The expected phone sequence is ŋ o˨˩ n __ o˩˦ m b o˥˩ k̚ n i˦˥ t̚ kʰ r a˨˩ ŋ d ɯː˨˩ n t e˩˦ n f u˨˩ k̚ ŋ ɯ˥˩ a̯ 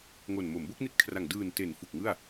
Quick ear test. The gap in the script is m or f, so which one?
m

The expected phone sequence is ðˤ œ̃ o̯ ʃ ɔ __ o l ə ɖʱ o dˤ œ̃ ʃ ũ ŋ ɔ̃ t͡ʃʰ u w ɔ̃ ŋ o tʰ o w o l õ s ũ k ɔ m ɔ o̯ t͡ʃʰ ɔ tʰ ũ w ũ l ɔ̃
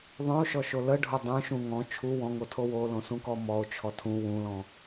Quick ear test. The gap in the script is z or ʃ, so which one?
ʃ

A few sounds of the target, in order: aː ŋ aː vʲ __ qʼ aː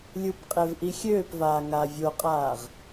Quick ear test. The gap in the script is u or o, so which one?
o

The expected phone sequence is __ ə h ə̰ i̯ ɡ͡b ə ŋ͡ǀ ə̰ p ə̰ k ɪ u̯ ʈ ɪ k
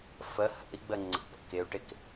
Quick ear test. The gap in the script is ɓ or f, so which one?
f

